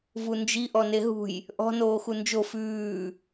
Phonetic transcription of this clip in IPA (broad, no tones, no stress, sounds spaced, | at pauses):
v u n d͡ʒ i ʔ ɔ n e ɦ ṳ j | ʔ ɔ̤ n oː x u n d͡ʒ o f ʉː